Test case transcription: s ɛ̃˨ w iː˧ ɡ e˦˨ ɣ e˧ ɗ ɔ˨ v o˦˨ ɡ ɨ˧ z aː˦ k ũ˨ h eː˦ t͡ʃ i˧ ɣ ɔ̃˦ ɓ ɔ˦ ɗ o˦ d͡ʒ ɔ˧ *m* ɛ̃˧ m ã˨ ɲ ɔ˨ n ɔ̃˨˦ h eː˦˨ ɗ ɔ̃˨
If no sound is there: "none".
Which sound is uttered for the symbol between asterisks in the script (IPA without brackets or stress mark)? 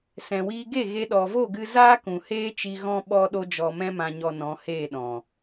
m